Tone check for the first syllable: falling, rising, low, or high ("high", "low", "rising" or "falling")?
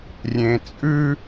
low